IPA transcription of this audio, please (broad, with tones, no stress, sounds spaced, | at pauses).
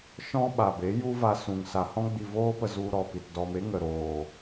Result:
ʃ ɔ̃˦ ɓ a˨ b e˨˦ j u˦ v a˧ s ũ˨ ŋ s a˨ h ɔ̃˧ ɡ͡b i˨ v oː˧ p ə˨ z u˧ ɾ ɔ˨ p i˨ t d ɔ˧ m e˦ ŋ ə˨ ɾ oː˨